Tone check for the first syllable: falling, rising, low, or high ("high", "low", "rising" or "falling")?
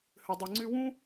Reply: low